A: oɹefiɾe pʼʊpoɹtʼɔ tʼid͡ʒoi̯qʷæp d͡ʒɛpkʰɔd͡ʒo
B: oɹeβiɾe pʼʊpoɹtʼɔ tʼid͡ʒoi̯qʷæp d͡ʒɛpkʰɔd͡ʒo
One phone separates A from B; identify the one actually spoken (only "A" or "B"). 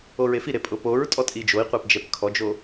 A